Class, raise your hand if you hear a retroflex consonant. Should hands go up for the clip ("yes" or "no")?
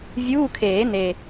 no